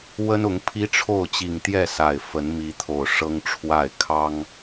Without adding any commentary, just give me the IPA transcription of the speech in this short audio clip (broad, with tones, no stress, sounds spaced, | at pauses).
w ə˦ n ʊ˨˦ ŋ pʰ i˦ ʈ͡ʂʰ o˥˨ ʊ̯ t͡ɕ i˨˩ ŋ t̪ j ɛ˥˨ s a˨˩ ɪ̯ f ə˨˦ n m i˨˦ t̪ʰ o˨˩ ʊ̯ ʂ ɤ˦ ŋ ʈ͡ʂʰ w a˥˨ ɪ̯ kʰ ɑ˦ ŋ